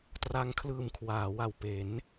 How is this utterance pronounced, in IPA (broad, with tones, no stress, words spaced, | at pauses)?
tra˧ŋkʰlɯː˨˩m kʰwaː˩˦wa˨˩wpe˩˦n